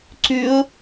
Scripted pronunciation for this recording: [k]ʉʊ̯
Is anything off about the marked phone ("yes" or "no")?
yes